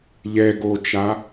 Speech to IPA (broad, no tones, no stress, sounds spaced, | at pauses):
ʎ ɛ ɡ oː t͡ʃ a